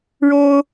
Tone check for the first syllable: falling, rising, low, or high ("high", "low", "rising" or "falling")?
high